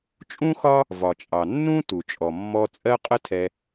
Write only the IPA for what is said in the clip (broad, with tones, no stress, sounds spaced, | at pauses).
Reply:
t͡ʃʼ ũ˦ x ɒ˦ | v ɒ˨ t͡ʃʼ ɑ˨ nː ũ˦ t u˨ t͡ʃʼ ɔ˨ mː ɔ˧ t͡sʼ ɜ˦ qʼ ə˦ tʰ ɛ˧